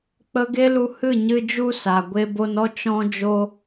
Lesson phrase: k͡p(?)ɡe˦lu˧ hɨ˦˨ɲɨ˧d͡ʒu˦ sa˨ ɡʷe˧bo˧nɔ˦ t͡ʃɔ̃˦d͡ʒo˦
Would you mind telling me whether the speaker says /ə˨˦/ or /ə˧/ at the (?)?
ə˧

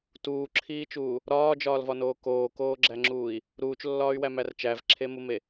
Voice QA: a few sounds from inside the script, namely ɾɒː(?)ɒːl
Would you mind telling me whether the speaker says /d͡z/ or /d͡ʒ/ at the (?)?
d͡ʒ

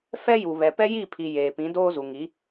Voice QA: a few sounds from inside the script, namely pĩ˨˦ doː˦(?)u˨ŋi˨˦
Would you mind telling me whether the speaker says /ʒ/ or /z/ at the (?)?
z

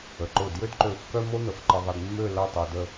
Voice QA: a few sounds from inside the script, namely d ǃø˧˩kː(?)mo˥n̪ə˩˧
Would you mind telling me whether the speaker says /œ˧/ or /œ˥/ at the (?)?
œ˥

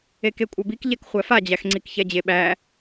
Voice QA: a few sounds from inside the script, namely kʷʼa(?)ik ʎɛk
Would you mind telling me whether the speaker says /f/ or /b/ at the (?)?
b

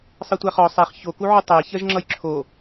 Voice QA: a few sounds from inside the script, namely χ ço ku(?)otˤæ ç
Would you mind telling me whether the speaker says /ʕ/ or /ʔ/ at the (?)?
ʕ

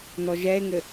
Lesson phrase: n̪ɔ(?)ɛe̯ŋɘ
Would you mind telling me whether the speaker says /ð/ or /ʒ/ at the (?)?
ʒ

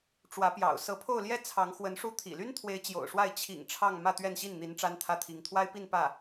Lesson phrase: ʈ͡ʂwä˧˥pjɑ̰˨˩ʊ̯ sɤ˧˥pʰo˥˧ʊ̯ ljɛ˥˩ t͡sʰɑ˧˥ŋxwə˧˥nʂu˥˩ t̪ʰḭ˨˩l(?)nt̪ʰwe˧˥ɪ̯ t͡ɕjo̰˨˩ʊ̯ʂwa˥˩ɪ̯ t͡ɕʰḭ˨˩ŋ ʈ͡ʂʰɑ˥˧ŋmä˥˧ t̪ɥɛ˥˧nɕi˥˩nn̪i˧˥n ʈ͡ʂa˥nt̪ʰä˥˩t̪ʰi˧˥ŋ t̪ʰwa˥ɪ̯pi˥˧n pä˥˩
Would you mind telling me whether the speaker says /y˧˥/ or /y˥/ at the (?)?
y˥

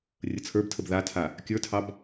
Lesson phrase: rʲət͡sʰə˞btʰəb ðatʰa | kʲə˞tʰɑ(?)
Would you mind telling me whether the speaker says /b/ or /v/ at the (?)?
b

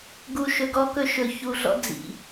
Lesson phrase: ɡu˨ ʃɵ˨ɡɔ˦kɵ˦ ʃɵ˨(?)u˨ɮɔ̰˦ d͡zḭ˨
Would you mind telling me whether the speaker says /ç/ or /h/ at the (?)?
ç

